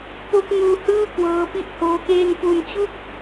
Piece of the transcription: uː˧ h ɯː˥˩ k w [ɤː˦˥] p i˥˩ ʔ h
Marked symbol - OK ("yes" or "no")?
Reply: yes